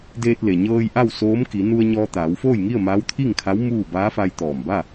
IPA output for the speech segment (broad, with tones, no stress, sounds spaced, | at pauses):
d eː˧ t̚ l e˩ ɲ ɤː˧ j ʔ a˥˨ w s oː˧˥ m k i˩˧ n u˧ ə̯ ɲ ɔː˧ t̪ aː˩˧ w f oː˥˨ j ŋ i˥˨ ə̯ m aː˧˥ w t̪ʰ i˥˨ ŋ kʰ a˧˥ w m uː˥˨ b aː˧˥ f a˧ j t̪ ɔː˧˩ m b a˥˨